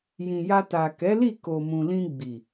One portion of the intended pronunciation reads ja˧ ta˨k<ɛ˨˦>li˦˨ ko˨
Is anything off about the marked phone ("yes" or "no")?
no